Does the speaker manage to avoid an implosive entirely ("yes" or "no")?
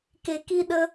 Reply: no